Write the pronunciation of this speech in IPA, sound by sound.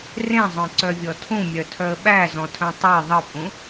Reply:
r ẽ zˤ œ̃ ǀ œ vʲ ɔ tʰ ũ mʲ œ tʰ œ ə̯ ɓ æ z ɔ̃ tʰ œ̃ tˤ ɯ ðˤ ɯ pʼ ũ

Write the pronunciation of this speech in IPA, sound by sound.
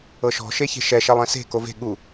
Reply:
ɤ ʃ ɔ̤ ʃ e ç e̤ ʃ ɛ ʃ ɛ lˠ ɛ̃ s e̤ k o v e̤ ɠ u

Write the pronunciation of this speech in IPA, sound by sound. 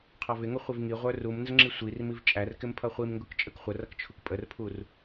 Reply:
qʰ ɑ v ɪ ŋ ʊ χʷ ɪ v ŋ i ʁʷ ə˞ r u m n z ə ŋ͡ǁ i sʷ i r m i v t͡ʃʼ æ r k ɪ m pʰ ʌ χʷ i m ŋ ɡ ʊ k t͡ʃʼ ə k χʷ ə r ʌ k t͡ʃʰ u k pʼ ə r pʰ u r

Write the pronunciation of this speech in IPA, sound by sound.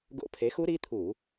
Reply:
ɡ o̰˧˥˧ pʰ e˨˥ x u˦˥ ɾ i˧˥˧ t̪ʰ u˧˩˧

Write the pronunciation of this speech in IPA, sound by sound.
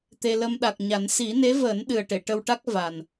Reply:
t̪ e˧ l ə˧ m ɗ a˨˩ k̚ ɲ a˨˩˦ n s i˨˩˦ n e˧˥ v əː˨˩˦ n ɗ ɨ˨˩ ə̯ ʈ e˨˩˨ ʈ ə˧ w ʈ a˦˥ k̚ v a˨˩ n

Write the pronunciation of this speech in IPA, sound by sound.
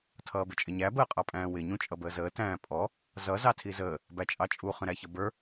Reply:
tʰ ʌː b ɪ t͡ʃʼ ɪ ɲ æ b əː qʼ ɑ pʼ æ̃ː w ɪ ɲ ũ t͡ʃʼ ʌ b əː z əː t æ̃ː pʼ ɔ | z ʌ z ɑ tʰ i z əː | b æ t͡ʃʼ ɑ t͡ʃʼ u χ ə̃ ɾ æ ç ʌ b ə˞

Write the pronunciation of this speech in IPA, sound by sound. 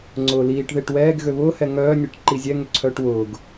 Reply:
ŋ͡ǀ ʊː l iː ʈ ð e ʈ w ɛː ɡ ɣ ø β ʊː h ɛ ŋ œː nʲ e ʈ ǃ i zʲ ɛ ŋ ʏ ǀʰ œː ʈ w ʊː ɡ

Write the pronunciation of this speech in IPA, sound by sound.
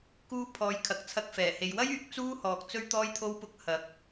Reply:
k uː˥ pʰ ɔː˨˧ j kʰ ɐ˨ k̚ t͡sʰ ɐ˥ k̚ f ɛː˨˩ h e˨˧ j w ɐ˥ j yː˨˥ k̚ t͡s uː˥ h ɔː˨ k̚ t͡s ɵ˥ ɥ t̪ ɔː˥ j t̪ʰ o˥ w p ʊ˧ k̚ h ɐ˨˥ k̚

